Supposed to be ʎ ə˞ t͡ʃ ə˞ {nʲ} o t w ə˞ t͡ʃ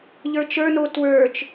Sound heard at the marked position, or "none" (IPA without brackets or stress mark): n